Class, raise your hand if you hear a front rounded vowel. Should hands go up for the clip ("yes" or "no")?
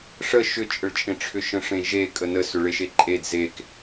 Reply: yes